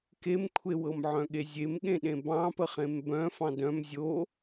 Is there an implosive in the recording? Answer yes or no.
yes